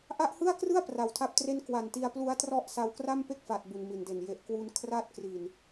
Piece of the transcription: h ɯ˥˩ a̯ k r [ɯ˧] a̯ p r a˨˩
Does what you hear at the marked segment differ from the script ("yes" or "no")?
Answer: yes